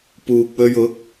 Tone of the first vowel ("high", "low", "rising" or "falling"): low